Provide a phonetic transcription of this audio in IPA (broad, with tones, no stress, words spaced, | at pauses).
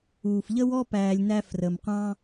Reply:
uː˩fʎə˥wɔ˥ pæː˧lʲnæ˥frə˩m qʷɑ̃˥